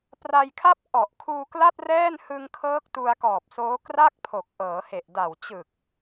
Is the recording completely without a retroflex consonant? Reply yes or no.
yes